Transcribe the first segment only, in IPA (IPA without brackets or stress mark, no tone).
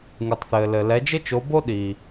ŋ